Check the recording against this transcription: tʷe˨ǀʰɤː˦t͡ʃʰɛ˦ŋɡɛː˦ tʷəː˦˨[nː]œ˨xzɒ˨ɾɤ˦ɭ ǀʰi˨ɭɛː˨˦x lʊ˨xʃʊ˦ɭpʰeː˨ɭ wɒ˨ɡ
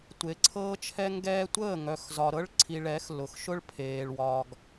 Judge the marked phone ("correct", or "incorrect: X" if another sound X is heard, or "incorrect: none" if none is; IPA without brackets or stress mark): incorrect: ŋ